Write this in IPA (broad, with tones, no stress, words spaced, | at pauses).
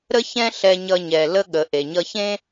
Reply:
ɾə˥çɛ̃˥ɬɛ˧ɲʌ˧ ɲɛ˩lə˧ ɠə˩ ʔe˩ɲʌ˧çẽ˥